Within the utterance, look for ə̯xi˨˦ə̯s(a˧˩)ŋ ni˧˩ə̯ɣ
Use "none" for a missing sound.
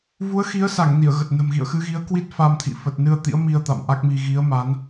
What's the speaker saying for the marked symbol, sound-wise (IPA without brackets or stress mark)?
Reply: a˧˩